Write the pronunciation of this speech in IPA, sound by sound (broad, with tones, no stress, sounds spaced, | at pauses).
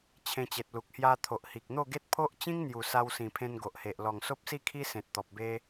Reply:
t͡ɕʰ ẽ˧ t͡ɕ e˨ t̚ l u˨ k̚ h j a˧ t̪ʰ o˨ ʔ h i˨ k̚ n̪ o˥˧ ɡ e˦ t̚ pʰ o˦ ʔ t͡ɕ ĩ˦ ŋ n̪ j u˨˩ s a˧ w s ĩ˨˩ pʰ ẽ˧ n ɡ o˨ ʔ h e˨ ʔ l ɔ˨˩ ŋ s o˦ p̚ s i˥˧ kʰ i˦ s ẽ˨ t̚ t̪ ɔ˨ p̚ b e˧